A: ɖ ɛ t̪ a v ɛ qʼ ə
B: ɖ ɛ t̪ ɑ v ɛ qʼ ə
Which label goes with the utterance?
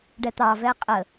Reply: B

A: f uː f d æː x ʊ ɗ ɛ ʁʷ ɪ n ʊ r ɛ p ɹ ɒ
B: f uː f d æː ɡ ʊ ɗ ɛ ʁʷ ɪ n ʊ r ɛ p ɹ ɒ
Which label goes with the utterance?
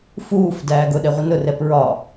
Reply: B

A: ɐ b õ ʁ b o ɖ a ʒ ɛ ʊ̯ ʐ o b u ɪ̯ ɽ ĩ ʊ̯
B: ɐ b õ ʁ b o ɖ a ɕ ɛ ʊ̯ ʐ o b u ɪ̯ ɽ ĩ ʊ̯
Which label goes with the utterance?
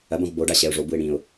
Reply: B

